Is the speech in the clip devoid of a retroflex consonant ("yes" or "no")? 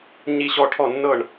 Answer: no